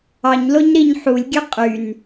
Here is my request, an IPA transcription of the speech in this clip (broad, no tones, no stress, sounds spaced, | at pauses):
ɑ ɲ l o ɲ ɾ i ɲ ħ u lʲ ɡʲ ø qʼ y n